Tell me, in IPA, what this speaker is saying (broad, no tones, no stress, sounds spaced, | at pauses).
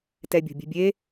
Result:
t ɛ bʲ o̤ bʲ e̤ bʲ e